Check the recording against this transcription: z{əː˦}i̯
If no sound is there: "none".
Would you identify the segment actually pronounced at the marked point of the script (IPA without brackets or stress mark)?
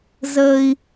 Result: əː˦